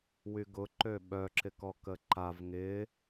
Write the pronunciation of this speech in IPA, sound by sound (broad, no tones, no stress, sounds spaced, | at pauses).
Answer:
w y ɡ ʊ ǃ ø ɓ œ ǁ ɪ k ɔ k ə ǃ a v ŋ ɪ